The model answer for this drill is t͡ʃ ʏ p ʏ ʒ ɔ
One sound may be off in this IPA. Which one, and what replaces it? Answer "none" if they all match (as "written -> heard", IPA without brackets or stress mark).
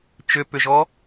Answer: none